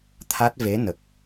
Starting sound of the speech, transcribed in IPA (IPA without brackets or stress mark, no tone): t̪ʰ